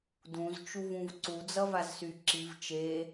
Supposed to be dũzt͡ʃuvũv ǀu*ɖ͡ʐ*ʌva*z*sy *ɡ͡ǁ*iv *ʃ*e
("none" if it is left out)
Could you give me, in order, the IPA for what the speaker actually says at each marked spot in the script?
d͡z, z, ǁ, t͡ʃ

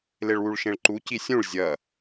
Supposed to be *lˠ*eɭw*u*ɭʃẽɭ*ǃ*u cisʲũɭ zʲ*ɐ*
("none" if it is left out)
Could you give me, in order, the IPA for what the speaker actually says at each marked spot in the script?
l, u, ǃ, ɐ

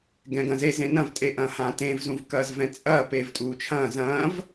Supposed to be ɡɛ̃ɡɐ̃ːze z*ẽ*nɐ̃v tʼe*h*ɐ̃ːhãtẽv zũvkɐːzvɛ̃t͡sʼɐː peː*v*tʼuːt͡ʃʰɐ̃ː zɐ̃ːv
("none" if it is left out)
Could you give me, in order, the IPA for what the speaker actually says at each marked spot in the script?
ẽ, ʔ, v

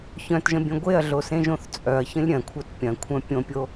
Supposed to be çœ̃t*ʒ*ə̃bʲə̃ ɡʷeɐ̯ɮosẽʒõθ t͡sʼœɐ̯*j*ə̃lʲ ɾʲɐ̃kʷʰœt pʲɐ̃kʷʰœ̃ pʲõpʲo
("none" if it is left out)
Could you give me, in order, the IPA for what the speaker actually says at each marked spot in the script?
ʒ, ç

